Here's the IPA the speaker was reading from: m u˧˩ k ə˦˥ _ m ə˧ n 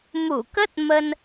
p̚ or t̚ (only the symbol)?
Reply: t̚